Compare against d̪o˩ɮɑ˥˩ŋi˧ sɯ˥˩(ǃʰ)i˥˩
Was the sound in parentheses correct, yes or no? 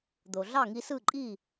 no